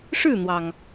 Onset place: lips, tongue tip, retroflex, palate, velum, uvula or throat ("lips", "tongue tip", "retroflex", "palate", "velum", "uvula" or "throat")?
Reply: retroflex